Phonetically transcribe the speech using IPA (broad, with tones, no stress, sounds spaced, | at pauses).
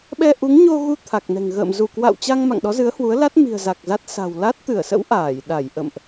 ɓ ɛ˧ ʔ u˨˦ ŋ ɲ o˧ ɣ u˧ t̪ʰ a˨˩ k̚ n ɛ̤˨˩ ŋ ɣ ə̰ː˧˨ m z u˧˩ k w a̰˧˨ w t͡ɕ a˧ ŋ m a̰˧˨ ŋ ɗ ɔ˨˦ z ɨ˨˦ ə̯ h w u˨˦ ə̯ l a˦˥ t̚ m i̤˨˩ ə̯ z a˨˩ k̚ z a˦˥ t̚ s a̤˨˩ w l a˦˥ t̚ t̪ ɨ˧˩ ə̯ s ə̰˧˥ w ʔ aː˧˩ j ɗ a˧˩ j ʔ ə̰˧˨ m ʔ